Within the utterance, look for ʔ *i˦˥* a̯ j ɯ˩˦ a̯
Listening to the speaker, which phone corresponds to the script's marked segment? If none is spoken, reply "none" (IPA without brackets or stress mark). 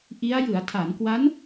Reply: i˦˥